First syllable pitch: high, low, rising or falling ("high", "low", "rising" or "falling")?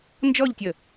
falling